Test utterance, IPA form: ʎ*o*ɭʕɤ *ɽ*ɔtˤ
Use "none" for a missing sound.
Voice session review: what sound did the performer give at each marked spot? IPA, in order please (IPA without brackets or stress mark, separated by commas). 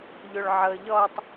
o, ʎ